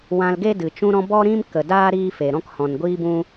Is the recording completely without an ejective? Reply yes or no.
yes